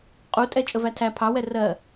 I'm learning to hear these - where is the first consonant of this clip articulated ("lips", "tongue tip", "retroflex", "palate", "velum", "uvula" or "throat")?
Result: uvula